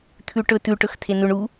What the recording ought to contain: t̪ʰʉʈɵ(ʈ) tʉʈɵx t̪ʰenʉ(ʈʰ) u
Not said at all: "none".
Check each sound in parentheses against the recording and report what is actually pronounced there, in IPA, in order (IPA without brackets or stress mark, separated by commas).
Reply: none, ɳ